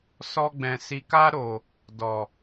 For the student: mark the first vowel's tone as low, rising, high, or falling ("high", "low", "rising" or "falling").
low